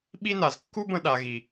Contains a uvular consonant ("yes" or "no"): no